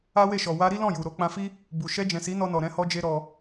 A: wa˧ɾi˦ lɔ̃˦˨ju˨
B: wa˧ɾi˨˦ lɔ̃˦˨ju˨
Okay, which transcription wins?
A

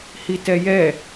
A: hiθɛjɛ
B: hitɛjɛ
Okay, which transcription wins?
B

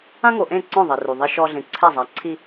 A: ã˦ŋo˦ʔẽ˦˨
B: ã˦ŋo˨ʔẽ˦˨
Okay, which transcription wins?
B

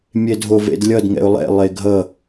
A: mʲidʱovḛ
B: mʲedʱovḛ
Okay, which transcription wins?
B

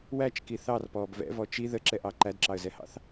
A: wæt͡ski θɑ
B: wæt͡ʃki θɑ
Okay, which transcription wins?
B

